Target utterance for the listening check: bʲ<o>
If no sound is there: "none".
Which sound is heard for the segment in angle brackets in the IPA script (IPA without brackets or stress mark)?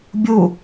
u